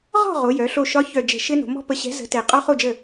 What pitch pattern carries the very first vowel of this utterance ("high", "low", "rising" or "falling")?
falling